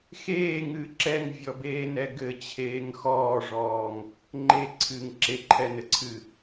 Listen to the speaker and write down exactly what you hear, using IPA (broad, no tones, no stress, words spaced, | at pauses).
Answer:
xeːŋɨː ǁɛŋvʲɔbeːnɛ ɡɘt͡ɕʰeːŋ xɔːʐɔːŋ | ŋ͡ǃeǀʰɨːŋ ǁeǃʰɛnɘǀʰɨ